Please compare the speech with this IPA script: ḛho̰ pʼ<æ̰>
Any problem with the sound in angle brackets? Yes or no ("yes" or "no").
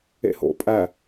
yes